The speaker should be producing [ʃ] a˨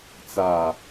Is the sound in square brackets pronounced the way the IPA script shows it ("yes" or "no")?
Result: no